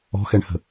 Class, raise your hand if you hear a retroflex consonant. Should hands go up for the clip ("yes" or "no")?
yes